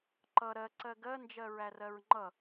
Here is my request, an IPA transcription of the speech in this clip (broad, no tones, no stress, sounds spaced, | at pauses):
ǃ ʌ ɾ ɜ ǀ ɜ ɡ ɜ n d͡ʒ ɜ ɹ æ r ɜ ɹ ŋ͡ǃ ʌ